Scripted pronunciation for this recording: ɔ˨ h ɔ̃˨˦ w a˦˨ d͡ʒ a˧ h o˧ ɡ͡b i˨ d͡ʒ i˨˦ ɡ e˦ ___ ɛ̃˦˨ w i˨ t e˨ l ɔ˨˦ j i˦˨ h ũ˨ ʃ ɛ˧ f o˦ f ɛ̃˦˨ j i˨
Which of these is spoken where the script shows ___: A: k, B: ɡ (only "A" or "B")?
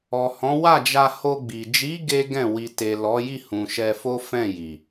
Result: B